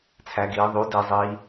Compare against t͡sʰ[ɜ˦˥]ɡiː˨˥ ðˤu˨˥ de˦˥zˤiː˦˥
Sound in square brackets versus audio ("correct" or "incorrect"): incorrect